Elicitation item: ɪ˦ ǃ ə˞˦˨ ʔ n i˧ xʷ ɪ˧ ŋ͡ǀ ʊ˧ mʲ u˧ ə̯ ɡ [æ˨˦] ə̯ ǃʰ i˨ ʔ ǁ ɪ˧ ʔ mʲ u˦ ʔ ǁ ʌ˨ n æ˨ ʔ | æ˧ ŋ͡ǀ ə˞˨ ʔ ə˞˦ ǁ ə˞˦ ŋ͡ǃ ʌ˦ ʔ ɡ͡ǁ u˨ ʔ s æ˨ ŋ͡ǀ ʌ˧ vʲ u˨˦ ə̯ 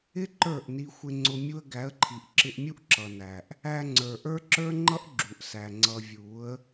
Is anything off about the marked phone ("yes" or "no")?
no